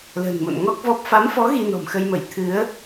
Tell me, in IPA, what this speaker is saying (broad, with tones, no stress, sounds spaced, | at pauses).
l ə̤ː˨˩ n m o̰˧˨ n ŋ ɔ˦˥ k̚ v ɔ˦˥ p̚ f a˨˦ m f ɔ˨˦ ɣ i˧ n ɔ̤˨˩ m x ə˧ j m ə˧˩ j t̪ʰ ɨ˨˦ ə̯